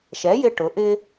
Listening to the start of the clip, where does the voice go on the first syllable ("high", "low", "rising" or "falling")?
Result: rising